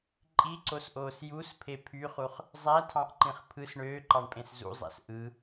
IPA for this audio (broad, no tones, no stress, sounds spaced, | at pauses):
ǃʼ i ǀ o s ʔ oː s j u s pʰ e pʰ y χ u χ | zˤ æ tʰ ɑ̃ ʔ ǃ ĩ χ pʰ ɯ s ɳ øː ǃ ɑ ɳ pʼ ẽ s z ṵ zˤ æ̰ s ʔ ɯ